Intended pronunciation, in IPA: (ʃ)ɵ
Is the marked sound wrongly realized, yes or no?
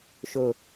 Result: no